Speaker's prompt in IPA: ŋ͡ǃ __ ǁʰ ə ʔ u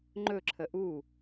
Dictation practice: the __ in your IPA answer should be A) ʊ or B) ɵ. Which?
B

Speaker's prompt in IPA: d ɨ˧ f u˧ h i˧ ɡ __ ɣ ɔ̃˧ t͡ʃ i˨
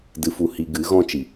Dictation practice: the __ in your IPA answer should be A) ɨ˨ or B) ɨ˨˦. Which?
B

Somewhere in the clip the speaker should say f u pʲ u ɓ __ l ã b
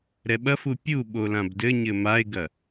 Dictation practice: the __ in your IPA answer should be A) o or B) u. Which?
A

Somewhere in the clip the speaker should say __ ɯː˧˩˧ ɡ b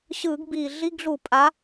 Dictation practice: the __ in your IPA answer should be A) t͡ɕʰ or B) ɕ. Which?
B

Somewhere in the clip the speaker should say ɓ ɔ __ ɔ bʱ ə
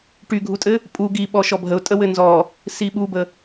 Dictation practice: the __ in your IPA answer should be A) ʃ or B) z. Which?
A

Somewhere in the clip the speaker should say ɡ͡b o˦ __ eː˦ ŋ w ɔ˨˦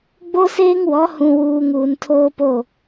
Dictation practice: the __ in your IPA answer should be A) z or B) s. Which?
B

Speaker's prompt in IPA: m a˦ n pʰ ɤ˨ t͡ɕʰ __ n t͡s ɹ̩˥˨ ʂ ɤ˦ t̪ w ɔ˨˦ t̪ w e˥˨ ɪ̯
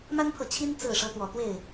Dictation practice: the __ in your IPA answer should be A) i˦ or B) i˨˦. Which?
A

